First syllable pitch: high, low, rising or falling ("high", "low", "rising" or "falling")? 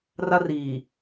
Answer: high